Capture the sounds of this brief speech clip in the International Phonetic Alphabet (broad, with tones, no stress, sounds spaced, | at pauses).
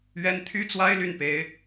ɥ ɛ˥ n t̪ʰ y˥ t͡s w a˥ ɪ̯ l y˥˩ n p e˧˥ ɪ̯